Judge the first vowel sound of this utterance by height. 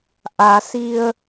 low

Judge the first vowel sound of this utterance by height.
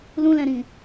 high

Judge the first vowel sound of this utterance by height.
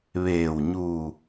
mid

